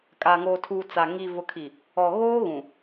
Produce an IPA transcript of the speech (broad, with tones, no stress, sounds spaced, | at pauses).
kʼ aː˨ ŋ oː˨ tʰ uː˨ t͡s a˨ ŋ i˨ v ʊ˨ kʰ i˨ | ɔ˨ ɣ oː˦ ɣ ũ˨